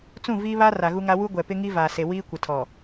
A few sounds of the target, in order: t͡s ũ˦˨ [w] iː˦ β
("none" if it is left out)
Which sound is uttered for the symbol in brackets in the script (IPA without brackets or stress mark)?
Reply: v